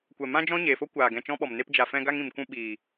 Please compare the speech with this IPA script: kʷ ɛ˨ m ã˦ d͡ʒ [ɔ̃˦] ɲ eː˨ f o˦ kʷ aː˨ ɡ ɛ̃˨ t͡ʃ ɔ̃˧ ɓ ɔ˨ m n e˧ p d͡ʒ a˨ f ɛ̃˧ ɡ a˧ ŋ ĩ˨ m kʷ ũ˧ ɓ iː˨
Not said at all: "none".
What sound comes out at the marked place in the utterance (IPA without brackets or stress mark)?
ɔ̃˦